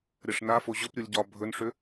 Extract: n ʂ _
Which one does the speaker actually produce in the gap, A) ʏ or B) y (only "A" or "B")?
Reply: A